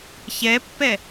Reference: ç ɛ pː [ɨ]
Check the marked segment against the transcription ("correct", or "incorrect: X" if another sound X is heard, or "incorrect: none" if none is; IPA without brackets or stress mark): incorrect: ɛ